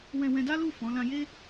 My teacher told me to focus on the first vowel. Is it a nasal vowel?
yes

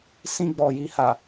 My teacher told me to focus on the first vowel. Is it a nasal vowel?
yes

